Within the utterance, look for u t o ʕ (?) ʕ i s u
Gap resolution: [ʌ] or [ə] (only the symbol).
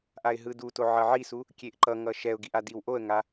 ʌ